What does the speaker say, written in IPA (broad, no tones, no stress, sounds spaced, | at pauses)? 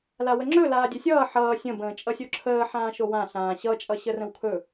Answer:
l a w ə ŋ͡ǁ ɵ l aː dʲ ɵ sʲ ʌː ħ ʌː sʲ ə̃ b ə̃ː t͡ʃʼ ʌ sʲ o ǁʰ əː ħ ãː ʃ o w ã ɬ ãː ɕ ʌ t͡ʃʼ ʌ ɕ ə r ə̃ w kʰ ɵ